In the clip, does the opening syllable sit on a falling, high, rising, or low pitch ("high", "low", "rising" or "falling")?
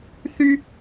high